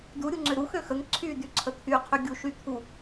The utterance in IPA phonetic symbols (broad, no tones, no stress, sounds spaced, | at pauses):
d u ɾʲ u ŋ͡ǀ ø ɾ u x ø x ə ŋ ǀʰ y d y ǀʰ ə t̪ʰ y qʰ y ɡʲ u ʃ y t̪ʰ u